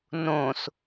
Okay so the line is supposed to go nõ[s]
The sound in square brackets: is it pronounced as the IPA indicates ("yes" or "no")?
yes